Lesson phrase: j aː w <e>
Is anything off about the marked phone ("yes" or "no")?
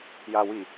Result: yes